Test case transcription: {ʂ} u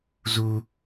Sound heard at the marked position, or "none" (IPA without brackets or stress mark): z